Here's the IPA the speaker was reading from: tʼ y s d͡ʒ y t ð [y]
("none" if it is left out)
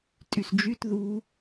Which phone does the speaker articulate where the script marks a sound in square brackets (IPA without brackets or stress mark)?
u